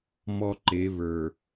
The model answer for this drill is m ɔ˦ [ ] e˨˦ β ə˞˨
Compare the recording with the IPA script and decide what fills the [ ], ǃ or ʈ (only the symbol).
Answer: ǃ